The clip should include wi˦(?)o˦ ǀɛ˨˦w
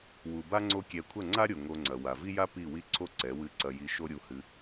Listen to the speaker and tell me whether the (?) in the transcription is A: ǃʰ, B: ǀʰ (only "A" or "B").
B